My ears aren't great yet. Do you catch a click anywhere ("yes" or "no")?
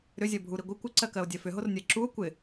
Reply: yes